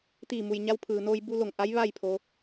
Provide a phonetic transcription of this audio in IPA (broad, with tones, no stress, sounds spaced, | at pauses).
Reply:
t̪ iː˧˩ m u˩ j ɲ a˧ w pʰ ɯː˩ n oː˧ j b u˧ l o˧˩ ŋ ʔ a˧˥ j ʋ a˥˨ j pʰ o˩˧